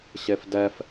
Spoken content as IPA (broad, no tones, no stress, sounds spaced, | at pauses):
ɕ e f d ɛ f